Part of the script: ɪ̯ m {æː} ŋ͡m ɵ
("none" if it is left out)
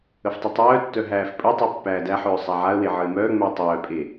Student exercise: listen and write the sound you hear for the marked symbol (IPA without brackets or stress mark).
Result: œː